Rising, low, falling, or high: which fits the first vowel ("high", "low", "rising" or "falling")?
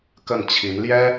falling